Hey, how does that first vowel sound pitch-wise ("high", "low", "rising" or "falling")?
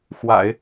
low